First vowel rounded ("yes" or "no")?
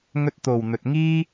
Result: yes